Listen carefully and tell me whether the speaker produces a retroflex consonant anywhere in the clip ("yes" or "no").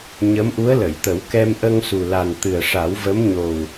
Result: yes